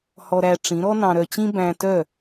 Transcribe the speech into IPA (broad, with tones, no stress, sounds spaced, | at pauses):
h ɔ˧ ɾ æ˧ ʈ͡ʂ ĩ˩˥ ɾ ɔ˥ n ɑ̃˧ ɾ œ˧ t͡ɕ ĩ˥ b æ̃˧ t œ˥˩